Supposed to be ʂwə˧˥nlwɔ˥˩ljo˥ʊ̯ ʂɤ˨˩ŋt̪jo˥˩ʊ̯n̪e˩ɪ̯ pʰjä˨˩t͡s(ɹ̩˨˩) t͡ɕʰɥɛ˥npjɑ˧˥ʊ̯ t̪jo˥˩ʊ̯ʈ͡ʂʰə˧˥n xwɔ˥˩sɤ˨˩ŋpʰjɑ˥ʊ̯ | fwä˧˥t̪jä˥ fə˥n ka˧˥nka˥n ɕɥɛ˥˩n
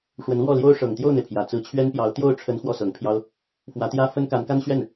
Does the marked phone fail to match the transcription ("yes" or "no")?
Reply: yes